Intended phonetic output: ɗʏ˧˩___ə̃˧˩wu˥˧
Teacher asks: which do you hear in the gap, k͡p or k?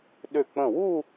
k͡p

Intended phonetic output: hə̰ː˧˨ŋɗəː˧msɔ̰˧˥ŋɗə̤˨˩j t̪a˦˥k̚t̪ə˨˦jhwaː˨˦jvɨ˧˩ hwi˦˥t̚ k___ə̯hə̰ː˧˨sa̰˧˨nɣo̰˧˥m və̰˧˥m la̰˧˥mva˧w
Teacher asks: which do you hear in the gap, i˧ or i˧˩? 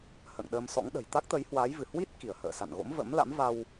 i˧˩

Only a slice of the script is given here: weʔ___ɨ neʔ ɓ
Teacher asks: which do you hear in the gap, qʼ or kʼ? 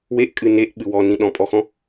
kʼ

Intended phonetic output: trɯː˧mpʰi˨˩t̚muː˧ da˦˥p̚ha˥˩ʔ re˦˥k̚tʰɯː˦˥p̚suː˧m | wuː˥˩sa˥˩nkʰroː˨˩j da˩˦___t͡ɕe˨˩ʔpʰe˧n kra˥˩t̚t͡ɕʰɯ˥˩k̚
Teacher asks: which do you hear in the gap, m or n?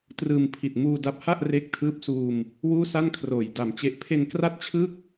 m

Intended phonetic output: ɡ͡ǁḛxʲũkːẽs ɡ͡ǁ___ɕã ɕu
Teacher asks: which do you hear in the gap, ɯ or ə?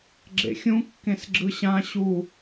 ɯ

